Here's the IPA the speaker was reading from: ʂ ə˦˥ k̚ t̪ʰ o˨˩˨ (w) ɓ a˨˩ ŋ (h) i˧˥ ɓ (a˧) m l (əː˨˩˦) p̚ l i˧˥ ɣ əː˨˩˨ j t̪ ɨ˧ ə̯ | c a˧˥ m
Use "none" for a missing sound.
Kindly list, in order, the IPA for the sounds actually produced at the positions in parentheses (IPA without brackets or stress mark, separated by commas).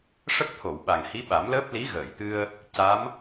w, h, a˨˩˦, əː˦˥